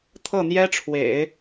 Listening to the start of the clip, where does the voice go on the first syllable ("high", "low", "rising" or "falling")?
falling